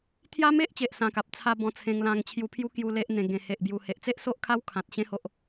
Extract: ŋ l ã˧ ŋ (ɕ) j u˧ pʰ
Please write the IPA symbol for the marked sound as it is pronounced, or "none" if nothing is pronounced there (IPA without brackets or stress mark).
t͡ɕʰ